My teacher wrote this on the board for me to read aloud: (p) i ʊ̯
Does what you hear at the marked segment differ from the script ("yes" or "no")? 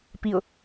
no